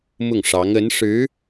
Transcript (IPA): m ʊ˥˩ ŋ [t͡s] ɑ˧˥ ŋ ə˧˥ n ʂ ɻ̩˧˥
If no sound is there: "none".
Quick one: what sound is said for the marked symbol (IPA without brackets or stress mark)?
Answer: ʂ